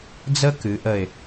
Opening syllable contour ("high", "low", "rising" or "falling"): high